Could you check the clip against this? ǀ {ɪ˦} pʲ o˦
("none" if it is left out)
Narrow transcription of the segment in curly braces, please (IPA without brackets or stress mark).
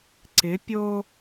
ɪ˨˦